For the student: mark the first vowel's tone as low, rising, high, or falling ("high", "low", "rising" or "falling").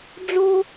high